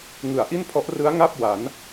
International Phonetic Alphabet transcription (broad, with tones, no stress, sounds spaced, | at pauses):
ŋ ɯ˩˦ a̯ ʔ i˥˩ n pʰ ɔ˦˥ ʔ r ɯ˦˥ a̯ ŋ a˥˩ p̚ w a˩˦ n